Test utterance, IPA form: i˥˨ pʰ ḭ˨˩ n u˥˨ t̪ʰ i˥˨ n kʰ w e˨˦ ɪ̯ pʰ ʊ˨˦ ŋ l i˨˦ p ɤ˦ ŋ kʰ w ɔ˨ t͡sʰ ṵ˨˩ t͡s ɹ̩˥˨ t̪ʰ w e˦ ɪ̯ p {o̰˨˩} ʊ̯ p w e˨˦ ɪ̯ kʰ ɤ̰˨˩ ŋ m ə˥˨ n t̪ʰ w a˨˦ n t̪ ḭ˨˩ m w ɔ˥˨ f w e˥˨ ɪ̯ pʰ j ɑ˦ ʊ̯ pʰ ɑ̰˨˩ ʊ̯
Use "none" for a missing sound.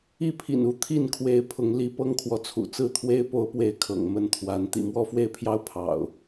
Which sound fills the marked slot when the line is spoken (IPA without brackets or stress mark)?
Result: o˨˦